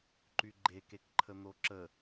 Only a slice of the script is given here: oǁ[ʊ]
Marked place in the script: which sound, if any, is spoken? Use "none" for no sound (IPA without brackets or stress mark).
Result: ə